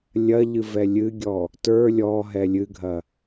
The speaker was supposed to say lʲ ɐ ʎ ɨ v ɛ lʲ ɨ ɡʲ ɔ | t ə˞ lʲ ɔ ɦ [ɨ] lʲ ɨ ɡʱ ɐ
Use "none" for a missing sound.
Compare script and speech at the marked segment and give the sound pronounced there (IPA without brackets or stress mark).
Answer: ɛ